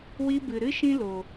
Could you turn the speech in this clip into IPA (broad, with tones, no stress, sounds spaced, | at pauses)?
w i˧ b ɨ˨ ɾ ɨ˦ ʃ ĩ˦ l o˨